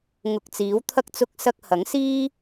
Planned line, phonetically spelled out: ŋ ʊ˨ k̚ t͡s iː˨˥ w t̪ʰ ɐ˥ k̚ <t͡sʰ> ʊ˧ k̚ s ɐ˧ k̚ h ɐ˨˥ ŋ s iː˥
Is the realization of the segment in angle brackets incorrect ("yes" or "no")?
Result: yes